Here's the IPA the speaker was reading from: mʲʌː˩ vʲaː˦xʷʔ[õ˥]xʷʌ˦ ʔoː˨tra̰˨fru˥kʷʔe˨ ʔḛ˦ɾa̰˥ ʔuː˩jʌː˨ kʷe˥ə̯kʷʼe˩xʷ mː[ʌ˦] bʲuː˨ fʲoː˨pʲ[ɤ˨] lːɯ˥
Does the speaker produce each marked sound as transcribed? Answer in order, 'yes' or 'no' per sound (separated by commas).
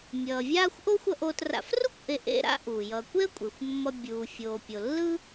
no, yes, no